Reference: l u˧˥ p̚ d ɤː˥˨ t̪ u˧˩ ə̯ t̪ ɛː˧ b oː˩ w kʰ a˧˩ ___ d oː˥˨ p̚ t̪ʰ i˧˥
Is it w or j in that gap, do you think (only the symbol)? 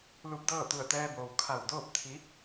w